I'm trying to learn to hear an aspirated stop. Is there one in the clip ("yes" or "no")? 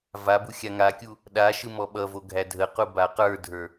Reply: no